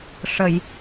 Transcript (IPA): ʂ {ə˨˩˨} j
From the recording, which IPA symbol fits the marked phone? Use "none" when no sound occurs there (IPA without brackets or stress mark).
ə˨˩˨